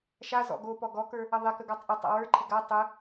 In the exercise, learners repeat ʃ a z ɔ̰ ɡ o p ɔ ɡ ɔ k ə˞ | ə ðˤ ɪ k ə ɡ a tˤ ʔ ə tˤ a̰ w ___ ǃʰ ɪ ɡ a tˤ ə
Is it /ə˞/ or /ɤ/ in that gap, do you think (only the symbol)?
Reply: ə˞